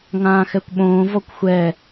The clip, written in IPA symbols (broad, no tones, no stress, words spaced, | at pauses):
ŋãːxɛkʷɓõː vɔkʷxʷɛ